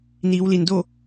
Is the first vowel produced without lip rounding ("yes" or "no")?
yes